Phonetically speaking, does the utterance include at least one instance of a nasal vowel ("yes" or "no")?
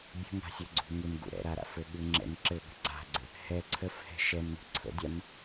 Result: no